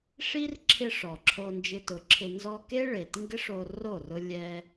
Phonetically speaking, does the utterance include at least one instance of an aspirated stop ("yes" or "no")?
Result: yes